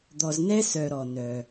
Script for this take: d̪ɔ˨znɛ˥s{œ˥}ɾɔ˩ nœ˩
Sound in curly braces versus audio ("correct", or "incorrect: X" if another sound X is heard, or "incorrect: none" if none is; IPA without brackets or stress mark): incorrect: œ˨